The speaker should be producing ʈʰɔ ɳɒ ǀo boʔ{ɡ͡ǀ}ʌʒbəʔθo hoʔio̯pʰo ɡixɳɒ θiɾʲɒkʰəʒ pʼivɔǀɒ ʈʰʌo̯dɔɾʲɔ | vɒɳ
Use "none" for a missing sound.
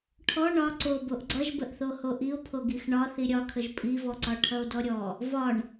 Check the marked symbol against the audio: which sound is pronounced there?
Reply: ɡ͡ǀ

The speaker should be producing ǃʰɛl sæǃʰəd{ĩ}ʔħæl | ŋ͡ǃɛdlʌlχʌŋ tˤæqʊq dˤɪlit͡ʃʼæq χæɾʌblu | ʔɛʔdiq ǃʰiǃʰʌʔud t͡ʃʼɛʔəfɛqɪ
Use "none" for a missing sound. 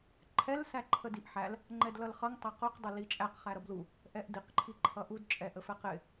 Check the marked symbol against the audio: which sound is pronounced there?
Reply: i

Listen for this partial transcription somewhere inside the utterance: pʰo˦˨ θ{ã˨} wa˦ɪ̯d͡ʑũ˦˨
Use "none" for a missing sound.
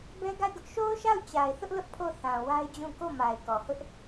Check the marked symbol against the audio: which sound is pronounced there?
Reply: ã˨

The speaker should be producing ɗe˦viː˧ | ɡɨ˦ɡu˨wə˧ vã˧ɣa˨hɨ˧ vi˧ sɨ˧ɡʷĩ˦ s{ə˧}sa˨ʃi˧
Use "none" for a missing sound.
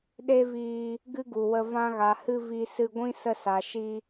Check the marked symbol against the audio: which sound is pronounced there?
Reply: ə˧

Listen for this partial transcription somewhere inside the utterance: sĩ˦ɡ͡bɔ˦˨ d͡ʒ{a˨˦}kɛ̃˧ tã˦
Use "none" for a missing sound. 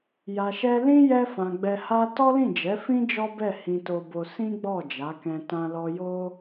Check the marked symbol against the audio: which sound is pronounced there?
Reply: a˨˦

